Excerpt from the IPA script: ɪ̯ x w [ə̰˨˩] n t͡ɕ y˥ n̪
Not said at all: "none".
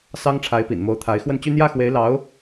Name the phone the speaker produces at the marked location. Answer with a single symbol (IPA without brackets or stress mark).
ə˥˩